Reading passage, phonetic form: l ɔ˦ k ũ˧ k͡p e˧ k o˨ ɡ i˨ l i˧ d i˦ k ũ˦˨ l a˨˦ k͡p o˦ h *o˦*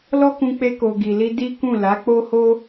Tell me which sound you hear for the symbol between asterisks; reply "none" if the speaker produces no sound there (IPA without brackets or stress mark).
o˦